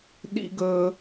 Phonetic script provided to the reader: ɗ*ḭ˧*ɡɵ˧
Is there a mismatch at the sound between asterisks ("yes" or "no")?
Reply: no